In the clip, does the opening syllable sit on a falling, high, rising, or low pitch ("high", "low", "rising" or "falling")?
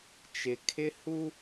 low